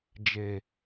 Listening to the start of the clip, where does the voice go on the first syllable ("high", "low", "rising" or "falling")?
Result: low